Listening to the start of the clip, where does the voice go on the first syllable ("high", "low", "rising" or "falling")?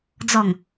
low